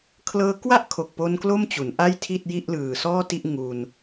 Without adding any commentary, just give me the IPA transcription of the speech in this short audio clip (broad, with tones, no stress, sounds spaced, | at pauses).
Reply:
kʰ l ɤː˧ k w a˥˩ ʔ kʰ o˨˩ k̚ p o˧ n k l o˥˩ m t͡ɕ u˩˦ n ʔ a˥˩ j tʰ i˥˩ t̚ j i˥˩ ʔ l ɯː˨˩ s ɔː˥˩ t i˥˩ ʔ ŋ u˧ n